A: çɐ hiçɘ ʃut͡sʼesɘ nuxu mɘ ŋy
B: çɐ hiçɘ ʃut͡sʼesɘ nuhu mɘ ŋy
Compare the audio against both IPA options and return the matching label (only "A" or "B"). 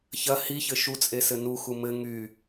A